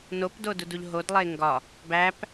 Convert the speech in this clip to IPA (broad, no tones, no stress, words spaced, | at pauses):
nopdodud uʎɦod lˠeŋɡɒ | bæp